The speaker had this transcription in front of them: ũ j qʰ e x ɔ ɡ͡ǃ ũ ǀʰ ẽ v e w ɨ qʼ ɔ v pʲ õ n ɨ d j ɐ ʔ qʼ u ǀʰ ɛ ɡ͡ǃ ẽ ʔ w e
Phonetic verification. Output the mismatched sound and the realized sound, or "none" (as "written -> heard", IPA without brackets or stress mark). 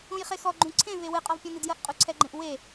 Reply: qʰ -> χ